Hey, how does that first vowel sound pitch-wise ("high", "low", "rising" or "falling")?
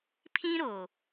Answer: high